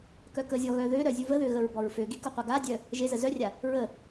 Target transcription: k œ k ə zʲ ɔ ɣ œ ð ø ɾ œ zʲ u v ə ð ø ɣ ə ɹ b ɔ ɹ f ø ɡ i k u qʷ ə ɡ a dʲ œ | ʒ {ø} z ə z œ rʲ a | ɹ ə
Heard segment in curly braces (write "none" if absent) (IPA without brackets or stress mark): e